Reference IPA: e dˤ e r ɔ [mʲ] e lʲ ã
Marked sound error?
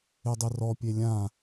yes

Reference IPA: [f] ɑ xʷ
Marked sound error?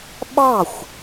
yes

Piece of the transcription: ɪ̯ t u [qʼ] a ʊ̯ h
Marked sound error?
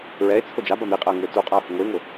no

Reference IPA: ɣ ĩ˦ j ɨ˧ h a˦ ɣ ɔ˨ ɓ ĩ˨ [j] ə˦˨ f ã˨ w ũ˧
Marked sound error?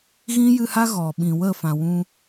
yes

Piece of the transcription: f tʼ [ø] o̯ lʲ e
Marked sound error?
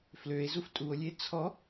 yes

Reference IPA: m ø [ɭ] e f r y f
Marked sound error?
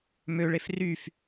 no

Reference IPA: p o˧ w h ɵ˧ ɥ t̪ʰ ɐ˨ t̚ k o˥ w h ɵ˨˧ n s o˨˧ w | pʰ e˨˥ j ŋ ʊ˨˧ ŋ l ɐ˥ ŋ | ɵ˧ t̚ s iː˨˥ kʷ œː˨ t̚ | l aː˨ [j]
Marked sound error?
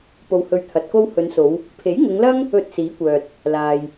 no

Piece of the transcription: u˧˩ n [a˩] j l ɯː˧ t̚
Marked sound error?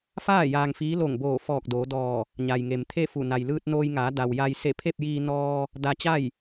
no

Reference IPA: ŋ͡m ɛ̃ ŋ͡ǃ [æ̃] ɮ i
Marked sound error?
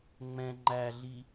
yes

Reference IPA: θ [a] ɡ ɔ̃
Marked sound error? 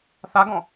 no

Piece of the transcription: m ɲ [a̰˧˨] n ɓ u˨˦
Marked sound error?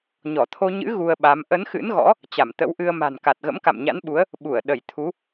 yes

